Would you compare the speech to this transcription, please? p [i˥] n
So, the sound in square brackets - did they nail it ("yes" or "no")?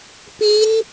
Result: yes